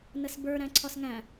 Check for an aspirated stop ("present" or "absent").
present